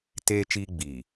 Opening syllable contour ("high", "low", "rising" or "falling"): high